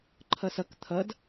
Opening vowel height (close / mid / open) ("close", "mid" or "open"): mid